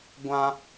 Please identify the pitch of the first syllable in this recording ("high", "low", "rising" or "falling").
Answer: high